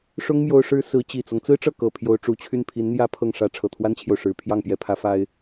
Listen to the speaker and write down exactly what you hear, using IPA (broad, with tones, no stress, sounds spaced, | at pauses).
ʂ ʊ˥ ŋ m j o˥ ʊ̯ ʂ ɻ̩˥ s ɹ̩˧˥ t͡ɕ i˨˩ t͡s ɤ˦ ŋ t͡s ɹ̩˥ ʈ͡ʂ ɤ˥˩ k ɤ˨˩ pʰ j o˧˥ ʊ̯ ʈ͡ʂ u˧˥ t͡ɕʰ y˥˩ n pʰ i˧˥ n n̪ j ä˥ pʰ ɤ˥˩ ŋ ʂ ä˥ ʈ͡ʂʰ ɤ˨˩ t̪ʰ w a˥ n t͡ɕʰ j o˨ ʊ̯ ʂ ɻ̩˨˩ pʰ j ɑ˥˩ ŋ p j ɛ˧˥ pʰ ä˧˥ f a˥ ɪ̯